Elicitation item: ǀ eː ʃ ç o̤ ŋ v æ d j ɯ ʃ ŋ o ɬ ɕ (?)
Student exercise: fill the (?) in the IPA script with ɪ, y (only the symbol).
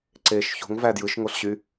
y